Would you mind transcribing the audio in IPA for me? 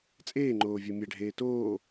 t͡sʼ eː ŋ͡ǃ oː vʲ o mʲ ɛ ɖʱ eː t oː

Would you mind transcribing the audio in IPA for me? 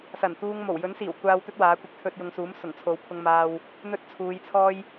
s ɐ˨˩ n t̪ uː˧ ŋ m o˨˩ w j ɵ˨˥ n s iː˨˩ w kʷ aː˨ w t̪ ɵ˧ t̚ w aː˨˥ kʷ ɪ˧ k̚ t̪ʰ ɵ˧ t̚ j ʊ˨ ŋ s uː˨˥ m s ʊ˨˩ ŋ t͡sʰ o˨˥ w pʰ ʊ˧ ŋ m aː˧ w | n̪ ɵ˥ t̚ t͡sʰ uː˨˧ j t͡sʰ ɔː˥ j

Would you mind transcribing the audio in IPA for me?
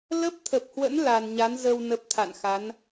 l ə˦˥ p̚ t̪ʰ ə˨˩ p̚ h w ə̰˧˥ n l a˨˩ n ɲ a˨˦ n z ə˧ w n ə˦˥ p̚ t̪ʰ a̰˧˨ n x a˨˦ n

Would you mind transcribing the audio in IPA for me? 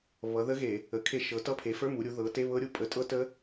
β ʌ˩˧ ð ə˦˥ ɣ e˧˩˧ | ə˩˧ kʰ e˧˩˧ ʃ ɤ˩˧ t ʌ˧˥˧ pʰ e˩˧ f ə˞˧˥˧ m u˩˧ ɾʲ u˩˧ ð ɤ˩˧ t e˧˥˧ β ɤ˦˥ ɾʲ u˥˩ pʼ ə˧˩˧ tʼ ɤ˦˥ t ə˦˥

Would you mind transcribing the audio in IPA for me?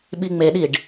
ɓ i ŋ͡m e ɗ i ɖ

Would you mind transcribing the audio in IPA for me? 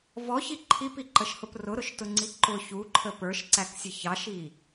v ɔ ç i ǃʰ i p i ǃ ə ʃ h ʊ p r ʊ ɾ ʊ ʃ t ʊ ŋ͡ǀ i ǃ ʊ ç u ǃʰ ə p ə˞ ʃ ǀ æ k sʲ ə ç ɑ ʃ i

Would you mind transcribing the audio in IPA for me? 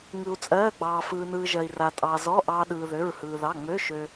ŋ ɯ˧ u̯ t͡sʼ ɜː˧˥˧ ɡ͡b ɑː˧ f ɯː˧ n ɯː˧ ʒ ɜ˧ i̯ r a˧ tʼ ɑ˧ z ɔ˧˥˧ ʔ ɑ˧ ɗ ɯː˧ ð ø˧˥˧ ɹ h ɯː˧ ð ɑ˧˥˧ ŋ͡m ø˧˥˧ ʃ ø˧

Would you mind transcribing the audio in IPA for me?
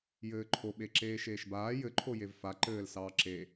j ɘː ǃʰ o ɓ e ǁ eː ʃ eː ʃ b aː j ɘ ǃʰ o j e v f a ǃ ɘː l s ɑː ǁ e

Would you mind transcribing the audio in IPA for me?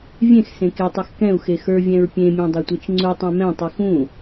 vʲ ẽ x s ẽ k e tˤ e x k ɛ̃ u̯ x e x ə˞ vʲ ɛ̃ ɹ pʲ ẽ mʲ ɛ̃ dˤ ɛ tʷ e t͡ʃ ŋ͡ǀ u tˤ ɛ̃ m ɛ̃ tˤ i x ũ

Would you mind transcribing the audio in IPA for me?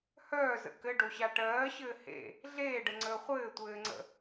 h œː z ə̰ k ɘ ɖ o ɕ a ʈ ɜː ɕ ɘː h ḛ | ɮ eː ɖ ə ŋ͡ǀ əː χʷ ɘː tʷ ɘː ŋ͡ǀ ə̰

